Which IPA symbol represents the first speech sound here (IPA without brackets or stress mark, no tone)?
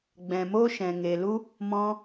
ɡ͡b